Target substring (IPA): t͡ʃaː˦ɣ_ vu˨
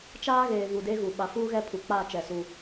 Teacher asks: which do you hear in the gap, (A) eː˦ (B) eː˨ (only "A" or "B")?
B